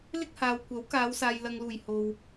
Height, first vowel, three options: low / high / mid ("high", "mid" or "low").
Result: high